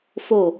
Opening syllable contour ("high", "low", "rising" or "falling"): falling